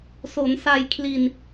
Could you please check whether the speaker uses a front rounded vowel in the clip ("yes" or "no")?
no